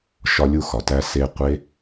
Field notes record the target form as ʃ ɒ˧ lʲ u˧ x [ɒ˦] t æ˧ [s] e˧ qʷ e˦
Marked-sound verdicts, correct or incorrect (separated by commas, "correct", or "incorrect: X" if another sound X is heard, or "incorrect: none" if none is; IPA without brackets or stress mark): incorrect: ɒ˨, correct